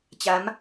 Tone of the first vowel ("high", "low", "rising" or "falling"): rising